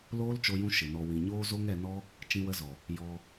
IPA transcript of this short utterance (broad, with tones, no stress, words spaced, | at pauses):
loː˦lt͡ʃo˧jũ˧ ʃɨ˨nɔ˧ wĩ˨ɲoː˦zo˦ŋ ɛ˧nɔ˦ | t͡ʃĩ˧wə˧zɔ˨ | jɔ˧